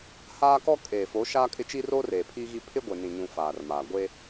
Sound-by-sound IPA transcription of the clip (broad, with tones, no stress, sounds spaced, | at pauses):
h aː˦ k ɔ˦ kʼ eː˨ f o˨˦ ʃ aː˦ kʼ ɪ˦ t͡ʃ i˦ r oː˦ r eː˨ pʰ iː˦ ɣ i˦ pʰ ɪ˦ ɡʷ e˨ n ĩ˨ ɲ ũ˨ f aː˨ r m aː˨ ɡʷ e˦